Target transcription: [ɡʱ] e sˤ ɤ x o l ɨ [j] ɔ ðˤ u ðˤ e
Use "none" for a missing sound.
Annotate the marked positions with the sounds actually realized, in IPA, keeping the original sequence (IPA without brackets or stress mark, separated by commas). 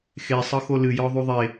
x, j